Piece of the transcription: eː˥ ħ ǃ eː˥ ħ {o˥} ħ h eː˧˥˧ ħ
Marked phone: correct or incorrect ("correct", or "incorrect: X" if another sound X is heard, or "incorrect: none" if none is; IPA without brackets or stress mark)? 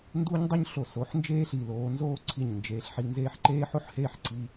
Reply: correct